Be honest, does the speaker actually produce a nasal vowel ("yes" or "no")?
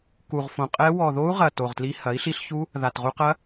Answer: yes